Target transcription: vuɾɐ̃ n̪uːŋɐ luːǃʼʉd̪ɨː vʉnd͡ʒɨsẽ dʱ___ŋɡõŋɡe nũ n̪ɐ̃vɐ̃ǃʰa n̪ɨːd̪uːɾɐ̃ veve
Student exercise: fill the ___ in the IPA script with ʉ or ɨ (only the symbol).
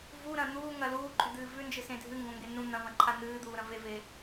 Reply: ɨ